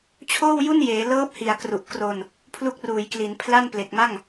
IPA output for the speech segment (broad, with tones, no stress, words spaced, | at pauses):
t͡ɕʰoː˥˩wju˥˩njeː˩˦ lɤː˦˥p̚hi˨˩a̯ kru˨˩ʔ kro˧n | pʰlu˦˥k̚ruː˩˦jkli˩˦n pʰla˥˩nple˨˩k̚ma˥˩ŋ